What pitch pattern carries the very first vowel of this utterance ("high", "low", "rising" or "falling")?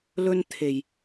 high